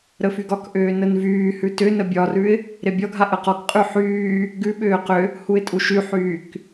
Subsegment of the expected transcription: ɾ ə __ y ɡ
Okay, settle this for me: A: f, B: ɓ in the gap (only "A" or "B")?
A